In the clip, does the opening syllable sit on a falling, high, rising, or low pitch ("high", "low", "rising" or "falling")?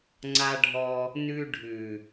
high